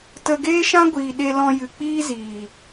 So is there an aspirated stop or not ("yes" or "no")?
no